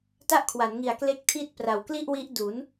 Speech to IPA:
ta˥˩ʔkʰwa˩˦nŋi˨˩a̯ kle˥˩k̚tʰi˥˩t̚ pra˩˦wkli˥˩ʔwi˦˥ʔdu˩˦n

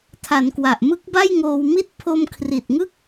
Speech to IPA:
tʰa˩˦nkwa˨˩ʔ mɯ˦˥k̚ba˥˩jŋoː˧wmi˥˩t̚ pʰo˧mkʰri˨˩t̚ŋɯ˥˩k̚

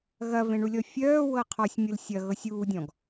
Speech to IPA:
ɣɐvẽɳulʲɔ fʲœːwɤ qʰɔsʲmʲɯl sʲɐɣɤsʲ uːdʲɔ̃ɡ

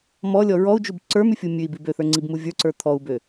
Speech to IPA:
mɔlʲɔ ɹɔu̯d͡ʒub ǀə˞mʉfʲu mʲʉi̯bi bøθə˞ŋ͡ǀibmu vʲə˞ǀə˞ t̪ʰɔu̯bø

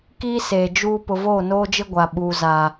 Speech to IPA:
kiː˦seː˨ d͡ʒuː˦ pʊ˨voː˦˨noː˦d͡ʒɪ˦ ɡʷa˨ɓuː˨ zaː˨

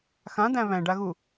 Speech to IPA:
xãd̪æ̃ βæ̃ɖaɣu

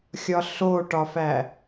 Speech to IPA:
xʲɒɬoʈɒfæ

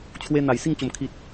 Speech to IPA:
t͡ɕʰwe˧ n̪a˨˩j si˥˧ŋt͡ɕo˨˩m kʰi˨t̚

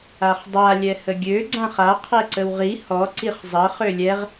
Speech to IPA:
aχdˤa lʲɛhəɡʲø ɡ͡ǀãχa qʰɛǀəwʁi hɔ ǀiχzˤə χølʲɛʁ

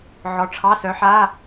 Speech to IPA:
ʕɔ˨˥ʈ͡ʂʰɑ˧˥˧sœ˨˥ħa˧˥˧

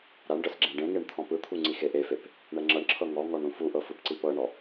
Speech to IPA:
ɾaɳɖɤs ɡ͡ǁẽɖẽŋeɳ t̪ʰɔ̃pɯt̪ʰu ŋ͡ǀixeʔefep | ɳɛŋ͡ǁɤɳǁʰɤ ŋɔ ŋɔɳɾũfuʔɤ fɯpǀipɤɳɔ

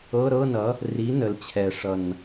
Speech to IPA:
ɤ˧˥˧ɾɤ˧˥˧nʌ˩˥ | ri˩˥ nə˩˥l t͡ɕʰɛ˨˩ʂʌ˨˩n

